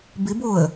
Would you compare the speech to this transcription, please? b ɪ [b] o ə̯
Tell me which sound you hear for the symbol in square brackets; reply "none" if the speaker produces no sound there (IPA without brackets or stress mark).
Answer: b